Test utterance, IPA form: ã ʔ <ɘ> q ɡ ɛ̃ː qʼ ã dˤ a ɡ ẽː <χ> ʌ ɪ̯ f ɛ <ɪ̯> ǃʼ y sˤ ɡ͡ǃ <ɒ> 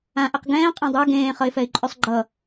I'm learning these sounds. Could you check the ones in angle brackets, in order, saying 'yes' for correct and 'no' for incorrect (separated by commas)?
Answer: no, yes, yes, no